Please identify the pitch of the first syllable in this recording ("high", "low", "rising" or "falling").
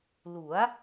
rising